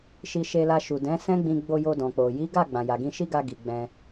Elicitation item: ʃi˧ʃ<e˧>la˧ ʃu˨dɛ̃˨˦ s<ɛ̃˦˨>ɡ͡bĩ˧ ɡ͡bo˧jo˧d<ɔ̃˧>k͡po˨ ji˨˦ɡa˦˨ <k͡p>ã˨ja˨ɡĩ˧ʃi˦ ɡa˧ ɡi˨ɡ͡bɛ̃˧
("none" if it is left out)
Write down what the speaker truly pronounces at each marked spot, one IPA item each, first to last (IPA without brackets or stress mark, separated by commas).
e˧, ɛ̃˦, ɔ̃˨, ɡ͡b